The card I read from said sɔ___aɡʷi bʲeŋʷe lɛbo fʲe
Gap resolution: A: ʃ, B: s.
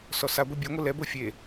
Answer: B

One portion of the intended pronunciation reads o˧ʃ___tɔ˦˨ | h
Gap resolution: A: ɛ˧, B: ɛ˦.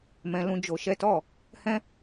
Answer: B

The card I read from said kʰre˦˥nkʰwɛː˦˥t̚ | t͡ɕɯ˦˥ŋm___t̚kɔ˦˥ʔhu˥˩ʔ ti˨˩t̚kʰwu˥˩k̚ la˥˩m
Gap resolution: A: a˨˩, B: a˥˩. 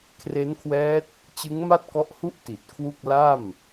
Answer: B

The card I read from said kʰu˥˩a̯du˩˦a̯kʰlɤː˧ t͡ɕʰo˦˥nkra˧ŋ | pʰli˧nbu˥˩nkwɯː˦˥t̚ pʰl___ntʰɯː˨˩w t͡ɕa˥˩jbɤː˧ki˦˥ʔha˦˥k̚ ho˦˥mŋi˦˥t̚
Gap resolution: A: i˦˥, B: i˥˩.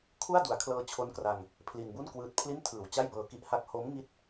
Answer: B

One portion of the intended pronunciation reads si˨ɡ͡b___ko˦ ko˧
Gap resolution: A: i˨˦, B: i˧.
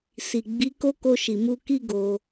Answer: A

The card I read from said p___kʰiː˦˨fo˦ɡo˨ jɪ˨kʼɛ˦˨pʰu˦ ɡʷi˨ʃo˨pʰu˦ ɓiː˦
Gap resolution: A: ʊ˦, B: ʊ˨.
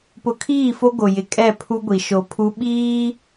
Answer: B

